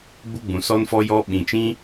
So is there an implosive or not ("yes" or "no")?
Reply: yes